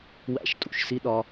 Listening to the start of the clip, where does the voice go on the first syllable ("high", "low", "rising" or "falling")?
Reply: falling